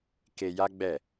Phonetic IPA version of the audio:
k e˧ j a˦ ɡ͡b ɛ˦˨

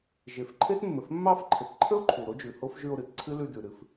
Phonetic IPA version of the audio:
ʒ e˨ f ǃʰ e˦ t mː ɘ˨ f mː ɑ˦ f ǃʰ ɘ˨ t ǃʰ ə˦ o̯ ǃʰ u˨ ɾ o˦ d͡ʒ ʉ˨ h o˦ f ʒ ʉ˧ o̯ ɾ ɨ˨ t ǀʰ ɨ˦ l ʉ˧ d ʉ˨ ɾ ɨ˧ f

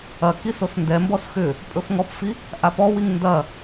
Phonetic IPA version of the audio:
ɐ k i s o s n d ɛ m b ɔ s x ʏ | pʼ ɵ f ŋ ɔ p f i | ʔ a p ɔ w i ŋ n d ɐ

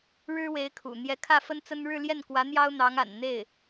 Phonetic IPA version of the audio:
ɻ ɻ̩˥ w e˧˥ ɪ̯ kʰ ṵ˨˩ n̪ j ɛ˧˥ kʰ ä˥˩ f ə˥ n t͡s ə˥ n ɻ ɻ̩˥˧ l j ɛ˥˩ n k w ä˧˥ n̪ j ɑ˥ ʊ̯ n̪ ɑ˧˥ ŋ a̰˨˩ n n̪ e˥˩ ɪ̯

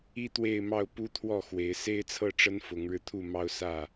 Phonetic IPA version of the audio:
i˦ t̪ w e˥˨ ɪ̯ m ɑ˥˨ ʊ̯ p u˦ t̪ʰ w ɔ˥˨ x w e˨˦ ɪ̯ s e˦ ɪ̯ t͡sʰ ɤ˥˨ ʈ͡ʂ ə˦ n f ʊ˨˦ ŋ ɻ ɻ̩˧ t̪ʰ u˥˨ m ɑ˦ ʊ̯ s ä˥˨

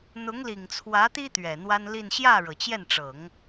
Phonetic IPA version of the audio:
n̪ ʊ˧˥ ŋ l i˨˩ ŋ t͡sʰ w ä˧˥ t̪ i˥ t̪ ɥ ɛ˨˩ n̪ w a˥ n l i˥˧ n ɕ j ä˥˩ ɻ ɤ˩ t͡ɕ j ɛ˥˩ n ʈ͡ʂ ɤ˨˩˦ ŋ

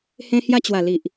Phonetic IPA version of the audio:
h ẽ˧ h j a˧ t͡ɕ w a˨˩ l i˨ ʔ

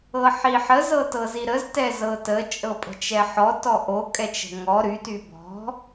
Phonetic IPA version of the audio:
ɤ ħ i ħ ə z ɤ t ɤ z i ɾ ə z t ɛ z ɤ t ə t͡ʃʼ ɤ pʼ ə̤ t͡ʃ ɛ ħ ɔ t ɔ ʔ o kʼ ɛ t͡ʃ ə̤ ŋ ɔ ɾ y t y b ɔ̤

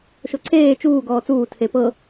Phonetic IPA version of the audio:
ʃ o ǀʰ eː t͡ʃ uː ɡ ɔː t͡s uː tʰ e p ɤ

